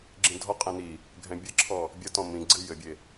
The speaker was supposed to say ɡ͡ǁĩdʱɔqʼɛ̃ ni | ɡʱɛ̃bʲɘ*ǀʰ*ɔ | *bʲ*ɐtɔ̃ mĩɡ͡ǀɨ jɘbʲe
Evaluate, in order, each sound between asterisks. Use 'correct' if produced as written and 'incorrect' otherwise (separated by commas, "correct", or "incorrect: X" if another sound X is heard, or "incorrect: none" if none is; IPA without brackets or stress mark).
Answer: incorrect: ǁʰ, correct